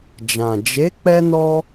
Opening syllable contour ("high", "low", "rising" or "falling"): low